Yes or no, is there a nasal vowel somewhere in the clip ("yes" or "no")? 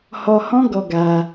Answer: yes